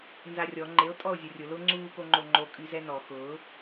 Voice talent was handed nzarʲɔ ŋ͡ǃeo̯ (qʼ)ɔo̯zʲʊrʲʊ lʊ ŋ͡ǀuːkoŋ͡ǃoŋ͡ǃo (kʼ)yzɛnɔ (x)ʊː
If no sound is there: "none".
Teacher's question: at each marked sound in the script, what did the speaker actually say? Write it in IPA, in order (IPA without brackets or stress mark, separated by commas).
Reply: tʼ, kʼ, x